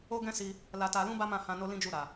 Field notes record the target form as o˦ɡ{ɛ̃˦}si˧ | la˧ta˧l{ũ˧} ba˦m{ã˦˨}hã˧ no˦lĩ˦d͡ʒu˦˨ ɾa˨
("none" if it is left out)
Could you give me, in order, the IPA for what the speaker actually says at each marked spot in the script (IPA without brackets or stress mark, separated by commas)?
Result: ɛ̃˦, ũ˦, ã˦˨